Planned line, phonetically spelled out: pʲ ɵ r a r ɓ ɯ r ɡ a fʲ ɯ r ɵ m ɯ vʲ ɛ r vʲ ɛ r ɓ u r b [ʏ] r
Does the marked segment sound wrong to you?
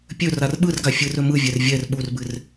yes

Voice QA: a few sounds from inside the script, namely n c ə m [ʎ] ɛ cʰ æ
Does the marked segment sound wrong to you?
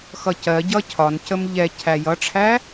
no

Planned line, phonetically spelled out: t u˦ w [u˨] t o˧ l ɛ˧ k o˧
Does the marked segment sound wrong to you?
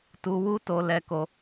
yes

